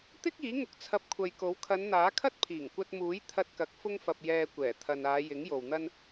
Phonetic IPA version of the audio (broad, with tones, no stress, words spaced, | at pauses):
t̪ɪ˥k̚iː˨˥ŋʊ˧k̚ t͡sʰɐ˧p̚kʷʰɐ˨jko˨˥w kʰɐ˨˧nn̪aː˨˥kʰɐ˥t̚ pʰiː˨˩ŋkʷɐ˧t̚muː˨˥j t̪ʰɐ˧t̚kɐ˨˥k̚ fʊ˥ŋfɐ˧p̚ jɛː˧kʷɛː˨˩t̪ʰɐ˨naː˨˧ jɪ˨˥ŋjo˨w n̪ɐ˥n